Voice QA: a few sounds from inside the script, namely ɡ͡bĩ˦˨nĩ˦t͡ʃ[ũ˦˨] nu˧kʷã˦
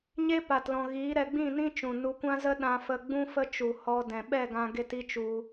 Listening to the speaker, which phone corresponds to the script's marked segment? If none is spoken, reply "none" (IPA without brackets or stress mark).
ũ˨